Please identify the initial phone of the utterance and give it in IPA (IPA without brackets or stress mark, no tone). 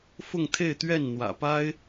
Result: f